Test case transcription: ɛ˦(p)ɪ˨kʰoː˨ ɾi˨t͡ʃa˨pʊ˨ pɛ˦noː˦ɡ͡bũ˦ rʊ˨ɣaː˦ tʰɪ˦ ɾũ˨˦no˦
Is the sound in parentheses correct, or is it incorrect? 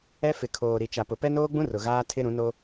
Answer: incorrect: f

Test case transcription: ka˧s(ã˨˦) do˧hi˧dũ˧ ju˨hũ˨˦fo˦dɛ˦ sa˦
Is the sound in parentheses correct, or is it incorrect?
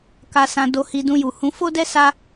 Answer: incorrect: ã˧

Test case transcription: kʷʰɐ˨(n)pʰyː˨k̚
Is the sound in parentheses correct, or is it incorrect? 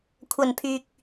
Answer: correct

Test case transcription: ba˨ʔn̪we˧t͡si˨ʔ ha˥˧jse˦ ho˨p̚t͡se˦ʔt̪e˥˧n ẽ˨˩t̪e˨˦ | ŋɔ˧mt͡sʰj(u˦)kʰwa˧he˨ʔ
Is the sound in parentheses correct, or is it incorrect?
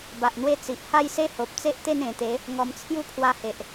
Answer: incorrect: u˥˧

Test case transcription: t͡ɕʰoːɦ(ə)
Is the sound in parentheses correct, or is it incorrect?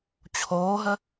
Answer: correct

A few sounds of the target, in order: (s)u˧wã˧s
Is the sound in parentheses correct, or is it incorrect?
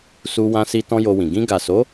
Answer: correct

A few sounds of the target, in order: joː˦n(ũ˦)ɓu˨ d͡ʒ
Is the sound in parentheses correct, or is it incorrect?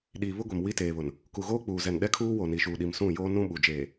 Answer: correct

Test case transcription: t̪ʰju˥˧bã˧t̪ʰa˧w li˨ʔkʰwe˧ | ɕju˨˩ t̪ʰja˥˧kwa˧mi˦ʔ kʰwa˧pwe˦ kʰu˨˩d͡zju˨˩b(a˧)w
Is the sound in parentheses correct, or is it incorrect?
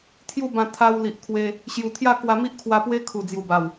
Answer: incorrect: a˨˩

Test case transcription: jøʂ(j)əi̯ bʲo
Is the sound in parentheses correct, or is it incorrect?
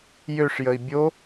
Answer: correct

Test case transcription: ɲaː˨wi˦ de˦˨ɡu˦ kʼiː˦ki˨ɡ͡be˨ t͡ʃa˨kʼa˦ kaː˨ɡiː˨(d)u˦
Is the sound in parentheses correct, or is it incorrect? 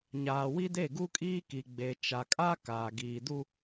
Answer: correct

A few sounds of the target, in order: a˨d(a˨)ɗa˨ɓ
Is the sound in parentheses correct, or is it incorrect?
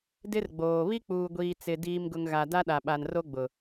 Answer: incorrect: a˦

